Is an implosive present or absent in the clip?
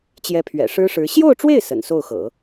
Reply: absent